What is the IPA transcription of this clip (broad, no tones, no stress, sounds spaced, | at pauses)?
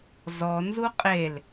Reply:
z ɔ n z u qʼ e l